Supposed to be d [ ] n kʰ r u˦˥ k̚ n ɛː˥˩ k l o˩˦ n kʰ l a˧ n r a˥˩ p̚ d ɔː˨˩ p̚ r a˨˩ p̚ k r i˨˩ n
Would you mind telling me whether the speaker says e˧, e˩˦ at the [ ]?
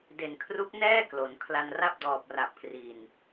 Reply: e˩˦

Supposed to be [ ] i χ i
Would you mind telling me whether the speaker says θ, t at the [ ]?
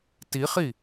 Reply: t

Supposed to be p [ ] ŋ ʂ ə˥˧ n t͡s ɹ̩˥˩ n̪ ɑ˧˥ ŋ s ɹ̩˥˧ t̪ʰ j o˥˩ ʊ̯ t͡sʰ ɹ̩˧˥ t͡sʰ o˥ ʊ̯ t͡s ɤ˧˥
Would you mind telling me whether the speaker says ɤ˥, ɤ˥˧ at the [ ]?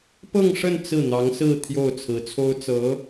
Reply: ɤ˥˧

